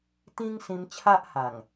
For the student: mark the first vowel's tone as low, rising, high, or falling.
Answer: high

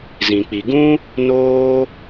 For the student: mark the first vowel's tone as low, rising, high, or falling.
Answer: low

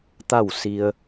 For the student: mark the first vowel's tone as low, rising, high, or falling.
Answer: falling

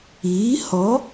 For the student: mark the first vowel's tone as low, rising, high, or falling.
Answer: rising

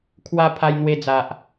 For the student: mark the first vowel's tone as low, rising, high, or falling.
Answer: high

